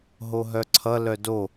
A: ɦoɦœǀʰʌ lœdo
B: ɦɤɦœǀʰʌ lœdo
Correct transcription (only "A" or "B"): A